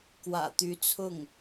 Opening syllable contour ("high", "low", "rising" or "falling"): low